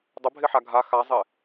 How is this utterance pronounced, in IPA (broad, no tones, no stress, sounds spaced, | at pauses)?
dˤ ə bʱ ɪ ħ a ɡʱ a x a zˤ ɪ